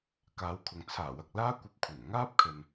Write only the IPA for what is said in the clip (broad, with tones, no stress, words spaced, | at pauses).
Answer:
kaː˨˧wkʰʊ˨ŋ t͡sʰaː˨˩wɐ˨k̚laː˥kʷɐ˧p̚ kʷʰɐ˨˩n ŋaː˥p̚kʰɵ˨n